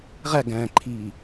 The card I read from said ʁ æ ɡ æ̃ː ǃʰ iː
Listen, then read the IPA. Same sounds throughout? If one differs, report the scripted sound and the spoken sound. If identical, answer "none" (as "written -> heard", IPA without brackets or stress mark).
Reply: none